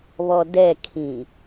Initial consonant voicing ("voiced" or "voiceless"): voiced